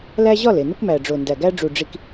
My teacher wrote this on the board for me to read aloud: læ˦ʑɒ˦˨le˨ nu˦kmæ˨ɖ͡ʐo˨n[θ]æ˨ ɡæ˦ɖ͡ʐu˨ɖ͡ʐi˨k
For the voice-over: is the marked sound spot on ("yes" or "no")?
no